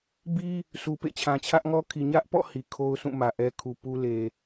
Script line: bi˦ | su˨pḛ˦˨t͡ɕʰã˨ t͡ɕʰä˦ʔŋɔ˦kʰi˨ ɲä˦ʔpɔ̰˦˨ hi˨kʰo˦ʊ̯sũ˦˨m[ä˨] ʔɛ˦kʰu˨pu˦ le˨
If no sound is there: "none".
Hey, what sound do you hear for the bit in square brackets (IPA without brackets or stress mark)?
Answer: ä˨